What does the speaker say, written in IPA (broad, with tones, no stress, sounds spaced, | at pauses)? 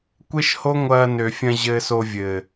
kʷ e˦ ʃ h o˦ ŋʷ ɐː˧ n ø˨ fʲ ɐ̃˧ ʑ ɘː˧ s o˧ vʲ ɘ˨